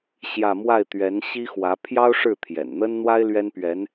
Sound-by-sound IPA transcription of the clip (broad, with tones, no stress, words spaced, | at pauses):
ɕjä˥˧ mwa˥˩ɪ̯ t̪ɥɛ˧˥n ɕi˥xwä˧˥ pʰjɑ˥ʊ̯ ʂɻ̩˥˩t̪ʰjɛ̰˨˩nn̪ə˥nn̪wa˥ɪ̯ lɥɛ˥npɥɛ˧˥n